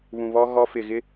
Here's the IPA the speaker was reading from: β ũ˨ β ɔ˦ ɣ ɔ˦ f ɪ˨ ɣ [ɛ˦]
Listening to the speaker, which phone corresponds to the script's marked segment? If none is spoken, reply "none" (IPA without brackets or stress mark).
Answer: ɪ˦